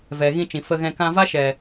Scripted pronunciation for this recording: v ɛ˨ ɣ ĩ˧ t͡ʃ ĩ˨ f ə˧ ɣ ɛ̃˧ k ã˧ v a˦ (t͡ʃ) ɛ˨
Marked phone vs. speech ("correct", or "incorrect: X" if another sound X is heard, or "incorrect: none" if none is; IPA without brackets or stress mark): incorrect: ʃ